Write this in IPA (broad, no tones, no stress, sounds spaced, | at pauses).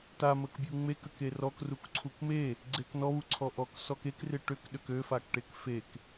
t a m ə k bʲ u ŋ͡m e k ə k e r ɔ k r u k ǀʰ u k m e | ɡ͡ǀ e k n ɔ β u ǀʰ ɔ ʔ ɔ k s ɔ k e k r ɪ ʈ ø k ɗ ø k ø f a k ʈ e k f e k